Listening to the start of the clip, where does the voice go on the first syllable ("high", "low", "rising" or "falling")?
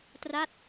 falling